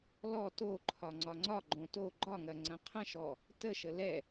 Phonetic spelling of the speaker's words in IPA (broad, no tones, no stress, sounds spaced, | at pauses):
l ɔ t o ǃʰ ɒ ŋ͡ǀ ɒ ŋ͡ǀ ɒ ɡ͡ǃ õ t o ɡ͡ǃ ɒ ŋ ɐ ŋ͡ǀ ɐ̃ qʰ ə̃ ʃ ɔ | t ə ʃ ə l ɛ